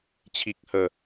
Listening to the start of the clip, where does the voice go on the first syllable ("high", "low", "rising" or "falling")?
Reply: low